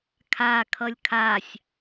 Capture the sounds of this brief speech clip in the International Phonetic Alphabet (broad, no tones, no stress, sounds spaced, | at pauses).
kʰ a kʰ ʌ lʲ kʰ a sʲ